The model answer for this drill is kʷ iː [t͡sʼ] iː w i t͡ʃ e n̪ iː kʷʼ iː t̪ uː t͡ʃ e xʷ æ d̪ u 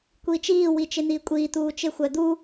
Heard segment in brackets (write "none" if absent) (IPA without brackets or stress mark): t͡ʃ